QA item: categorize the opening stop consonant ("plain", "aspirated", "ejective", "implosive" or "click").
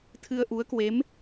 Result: aspirated